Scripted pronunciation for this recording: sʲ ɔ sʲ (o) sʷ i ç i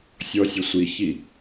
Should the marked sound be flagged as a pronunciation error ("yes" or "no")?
yes